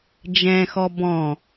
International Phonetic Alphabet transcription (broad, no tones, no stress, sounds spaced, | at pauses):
d͡ʒ ɛ̃ x ɔ b ɔ̃